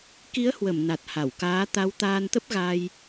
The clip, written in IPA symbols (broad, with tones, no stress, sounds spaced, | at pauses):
k i˨˦ ə̯ h w ə˧˩ m n a˨˩ t̚ h a˧˩ w k aː˨˦ t̪ a˨˦ w t̪ aː˧ n t̪ ə˦˥ p̚ ɣ a˧ j